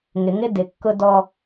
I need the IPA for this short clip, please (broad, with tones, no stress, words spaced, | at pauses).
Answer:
ŋɪ˨˦ŋɪ˦ dɪ˨kːʊ˦dɔ˦